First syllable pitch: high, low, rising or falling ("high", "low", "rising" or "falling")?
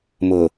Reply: low